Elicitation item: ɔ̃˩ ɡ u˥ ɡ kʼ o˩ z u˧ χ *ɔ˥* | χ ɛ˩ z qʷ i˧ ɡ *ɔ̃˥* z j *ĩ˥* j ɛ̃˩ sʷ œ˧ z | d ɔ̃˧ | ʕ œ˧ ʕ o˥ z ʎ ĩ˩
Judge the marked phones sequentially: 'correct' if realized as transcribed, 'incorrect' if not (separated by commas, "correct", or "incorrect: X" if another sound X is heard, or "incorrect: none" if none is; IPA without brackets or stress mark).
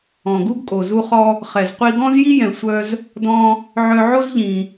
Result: incorrect: ɔ˧, correct, incorrect: i˥